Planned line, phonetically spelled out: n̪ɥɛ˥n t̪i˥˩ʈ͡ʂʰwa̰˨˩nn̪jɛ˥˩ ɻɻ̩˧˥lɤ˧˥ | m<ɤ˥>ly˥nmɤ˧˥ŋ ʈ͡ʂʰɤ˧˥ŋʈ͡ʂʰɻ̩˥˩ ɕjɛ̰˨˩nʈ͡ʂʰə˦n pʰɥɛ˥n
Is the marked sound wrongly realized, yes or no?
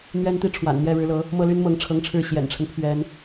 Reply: yes